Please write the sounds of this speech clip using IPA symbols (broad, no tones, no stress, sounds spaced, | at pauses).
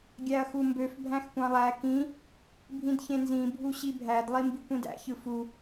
ɡʲ æ ɐ̯ x u m b ø f bʱ æ̃ x kʷ ɑ̃ lˠ æ k ĩ | bʱ ĩ d ç ẽ n z ĩ bʱ u ɕ i bʱ æ d lˠ i m b i kʷ ĩ d æ̰ ç ɯ f u